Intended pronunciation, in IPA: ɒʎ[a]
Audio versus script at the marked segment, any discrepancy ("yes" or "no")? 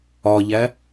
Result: yes